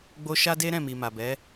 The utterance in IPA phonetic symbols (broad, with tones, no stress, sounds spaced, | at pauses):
ɡ͡b o˧ ʃ a˦ d e˦ ɾ ɛ̃˦˨ m i˨ m a˨ b ɛ˨˦